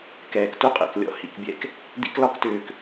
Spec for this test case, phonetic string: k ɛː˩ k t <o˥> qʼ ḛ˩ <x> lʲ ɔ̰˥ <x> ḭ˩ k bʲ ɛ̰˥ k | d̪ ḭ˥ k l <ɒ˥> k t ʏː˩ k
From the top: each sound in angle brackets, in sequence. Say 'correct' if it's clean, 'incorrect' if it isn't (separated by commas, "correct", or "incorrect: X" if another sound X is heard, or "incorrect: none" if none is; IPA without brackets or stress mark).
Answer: incorrect: u˥, incorrect: k, incorrect: h, correct